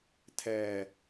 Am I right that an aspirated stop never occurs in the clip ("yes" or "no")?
no